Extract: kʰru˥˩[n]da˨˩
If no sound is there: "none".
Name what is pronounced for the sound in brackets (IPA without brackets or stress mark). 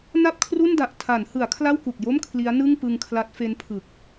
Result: n